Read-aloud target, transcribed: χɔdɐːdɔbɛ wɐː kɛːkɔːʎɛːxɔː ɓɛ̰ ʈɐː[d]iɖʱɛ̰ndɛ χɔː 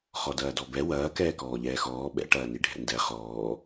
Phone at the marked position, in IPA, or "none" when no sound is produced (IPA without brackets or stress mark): n